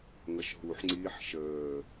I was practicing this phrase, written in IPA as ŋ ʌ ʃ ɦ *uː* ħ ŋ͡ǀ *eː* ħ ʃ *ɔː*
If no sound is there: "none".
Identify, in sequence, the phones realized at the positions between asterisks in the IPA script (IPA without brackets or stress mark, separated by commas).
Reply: u, iː, əː